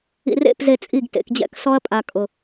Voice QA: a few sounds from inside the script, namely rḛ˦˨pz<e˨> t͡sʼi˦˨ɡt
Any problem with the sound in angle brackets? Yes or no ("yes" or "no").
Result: no